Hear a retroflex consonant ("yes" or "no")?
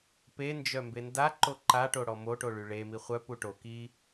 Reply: yes